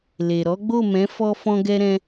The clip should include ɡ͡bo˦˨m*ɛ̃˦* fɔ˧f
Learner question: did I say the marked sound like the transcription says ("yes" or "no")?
no